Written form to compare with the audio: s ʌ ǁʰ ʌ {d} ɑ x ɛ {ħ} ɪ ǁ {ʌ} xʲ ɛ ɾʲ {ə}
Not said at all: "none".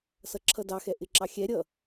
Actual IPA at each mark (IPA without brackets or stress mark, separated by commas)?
d, ʔ, ɑ, ʌ